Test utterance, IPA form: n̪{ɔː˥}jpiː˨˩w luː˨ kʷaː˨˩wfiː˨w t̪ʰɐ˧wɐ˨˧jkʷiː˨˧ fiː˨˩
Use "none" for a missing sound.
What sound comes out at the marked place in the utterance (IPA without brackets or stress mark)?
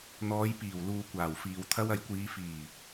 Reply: ɔː˨˧